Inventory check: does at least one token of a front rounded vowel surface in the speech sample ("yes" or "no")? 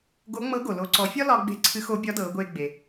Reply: no